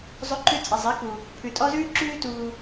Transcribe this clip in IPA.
zˤ ɵ˦ ǃ ʉ˦ t͡sʼ i˨ zˤ e˨˥ k u˨ | pʰ ʉ˨ tʼ ɔ˦ z ʉː˦ ǁ ʉː˦ t uː˦

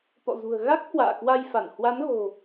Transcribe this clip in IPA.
t̪ ɔ̰˧˨ z ṳ˨˩ ə̯ ɣ a˦˥ k̚ h w a̰ː˧˨ k w a˧ j f a˧˩ n h w a˨˦ n ɣ o̤˨˩

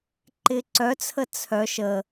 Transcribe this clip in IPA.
ǃ ɪː ǀ œ t͡sʰ ə t͡sʰ œ ʃ ə

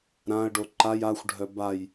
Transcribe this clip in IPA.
ɾ ã ə̯ ɖ o ǃ a j a xʷ ɖʱ œ b a j

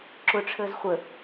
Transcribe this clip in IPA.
ǁ ʊ ʈ͡ʂʰ əː z χʷ ə

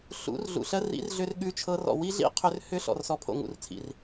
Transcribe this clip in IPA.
ɬ ṵ˨˦ r ɮ ṵ˨ ɬ ɜ˧ r ḭ˨˦ r ɮ ʏ˧ r ɠ ʉ˧ t͡ʃʰ ɤ˧ r ɔ̰˨ w i˦ ɮ ḭ˦ qʰ ʏ˧ r h ʏ˧ ɬ ɔ̰˨ r s ɔ˨ pʰ o̰˨ ŋ ṵ˨ r t͡sʰ ḭ˨ r

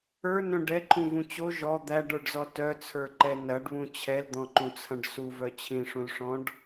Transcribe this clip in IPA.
ə˞ n œ̃ ɖ ɛ ǃʰ ũ v ũ t͡ɕ o ʒ ɔ d̪ æ ɖ ə˞ ɖ z ɔ t œ t͡sʰ ə˞ ǃ ɛ n ɐ ɖ β ũ t͡ɕʰ ɛ l d̪ ɔ̃ ǃ ũ t͡sʰ ɐ̃ ɖ s u v œ t͡ɕʰ ĩ ʂ ũ l ʂ ɔ̃ ɖ

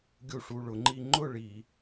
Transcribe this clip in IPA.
ɡʲ u˧˩ ʂ u˩˧˩ ɭ ʊ˩˥ ŋ͡ǃ i˦ ŋ͡ǃ ʊ˥˨ ɭ i˧˩˧

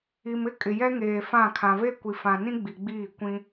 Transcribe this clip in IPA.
i˨ m ɪ˦ kʼ ɪ˨ j ɛ˦ ŋ eː˨ f ã˦˨ kʰ ã˨ v e˦ kʷ i˨ f ã˨ n ĩ˦ ɡ͡b i˨ ɡ͡b iː˦˨ kʷ ĩ˦

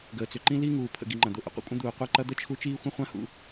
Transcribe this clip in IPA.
ɡ əː˨ t͡s ʏ˨ ǃ ĩ˥ l i˥ ŋ uː˨ pʰ ə̰˨ ɡ i˨ ŋ͡ǃ ɐ̃˩ d̪ ʊ˨ ʔ ə̰˩ qʷ ə̰˦ kʷʼ ə̃˥ d̪ uː˨ qʷ e˦ ǃ ɐ˦ d̪ ə˥ t͡ʃʰ u˦ t͡ʃ iː˥ xʷ ə̃˥ χʷ ã˥ h ṵ˨

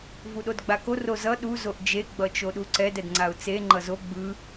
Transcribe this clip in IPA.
v u ɗ o d ɡ͡b a k o r o z ʌ ɗ u z o ʔ d͡ʒ e ɡ͡b ʌ t͡ʃ o ɗ u ǀ ɛ d ɛ d ŋ͡ǀ a ʊ̯ t͡s e ŋ͡ǃ ʌ z o ɡ͡b ɯ

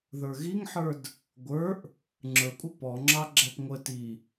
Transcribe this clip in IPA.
ð ə˞ ɣ i ŋ ħ ə˞ d | ɡʷ ə˞ ʔ | ŋ͡ǁ ə˞ kʷʼ ɪ p ɔ ŋ͡ǁ ɑ ɡ͡ǁ æ p ŋʷ ə t i

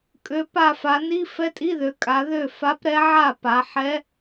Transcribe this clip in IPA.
kʼ ø˩˧ p a˧˩ f a˩˧ n i˧˥˧ f ɛ˧˥˧ tʼ i˧˥˧ ð ø˩˧ kʼ a˩˧ ð ø˥˩ f a˧˥ p ɾ ɛ˧˥ ʕ a˥˩ p a˩˧ ħ ɛ˧˥

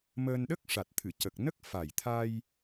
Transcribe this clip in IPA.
m əː˧ n ɗ ə˦˥ k̚ ʂ a˨˩ t̚ t̪ʰ ɨ˨˩˨ c ə˨˩ k̚ n ə˦˥ k̚ f a˨˩ j t̪ʰ a˧ j

